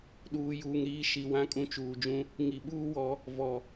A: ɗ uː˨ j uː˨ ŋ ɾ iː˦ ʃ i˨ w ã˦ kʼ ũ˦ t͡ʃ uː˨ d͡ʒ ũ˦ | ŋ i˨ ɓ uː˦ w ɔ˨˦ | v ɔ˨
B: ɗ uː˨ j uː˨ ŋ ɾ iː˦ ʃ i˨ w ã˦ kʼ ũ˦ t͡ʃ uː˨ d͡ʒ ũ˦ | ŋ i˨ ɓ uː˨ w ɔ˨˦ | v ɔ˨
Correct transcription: A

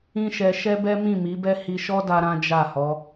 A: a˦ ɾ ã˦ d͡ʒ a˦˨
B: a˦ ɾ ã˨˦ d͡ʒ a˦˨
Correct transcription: A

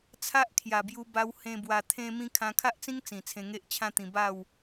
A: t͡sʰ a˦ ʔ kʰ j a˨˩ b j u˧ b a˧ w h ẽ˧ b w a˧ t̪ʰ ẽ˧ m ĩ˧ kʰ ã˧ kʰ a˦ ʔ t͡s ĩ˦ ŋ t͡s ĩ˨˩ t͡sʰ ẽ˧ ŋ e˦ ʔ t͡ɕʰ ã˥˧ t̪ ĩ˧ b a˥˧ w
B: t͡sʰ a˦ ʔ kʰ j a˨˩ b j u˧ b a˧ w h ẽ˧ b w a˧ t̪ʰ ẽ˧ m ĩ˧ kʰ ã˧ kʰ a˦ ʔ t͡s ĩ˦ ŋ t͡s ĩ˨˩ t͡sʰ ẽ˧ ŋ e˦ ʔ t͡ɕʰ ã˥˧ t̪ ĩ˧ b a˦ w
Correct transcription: A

